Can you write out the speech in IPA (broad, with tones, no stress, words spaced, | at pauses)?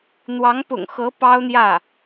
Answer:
n̪wɑ˧˥ŋpʊ̰˨˩ŋxɤ˧˥ pɑ˥ʊ̯n̪jä˥˩